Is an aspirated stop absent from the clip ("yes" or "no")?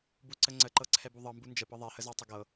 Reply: no